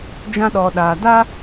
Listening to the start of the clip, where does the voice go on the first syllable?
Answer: high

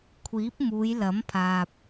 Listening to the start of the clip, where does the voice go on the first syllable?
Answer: rising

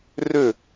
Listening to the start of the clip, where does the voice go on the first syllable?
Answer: falling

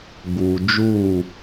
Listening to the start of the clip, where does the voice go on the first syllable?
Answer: low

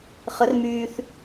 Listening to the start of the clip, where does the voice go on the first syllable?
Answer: rising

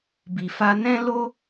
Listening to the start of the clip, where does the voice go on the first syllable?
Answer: low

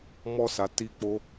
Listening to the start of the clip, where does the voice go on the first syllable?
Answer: high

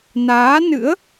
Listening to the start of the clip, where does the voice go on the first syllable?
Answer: rising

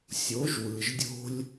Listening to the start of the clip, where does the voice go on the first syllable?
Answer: rising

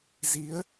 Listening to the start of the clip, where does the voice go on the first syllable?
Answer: rising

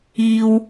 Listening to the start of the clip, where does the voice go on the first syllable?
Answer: low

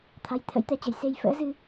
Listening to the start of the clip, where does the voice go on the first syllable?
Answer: rising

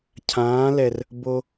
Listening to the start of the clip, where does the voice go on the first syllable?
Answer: rising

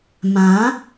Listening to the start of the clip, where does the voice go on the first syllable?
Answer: rising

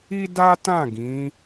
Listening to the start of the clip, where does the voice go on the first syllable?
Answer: high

